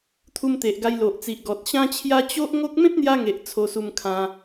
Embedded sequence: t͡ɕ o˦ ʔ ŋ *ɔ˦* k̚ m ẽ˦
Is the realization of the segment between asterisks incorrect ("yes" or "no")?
yes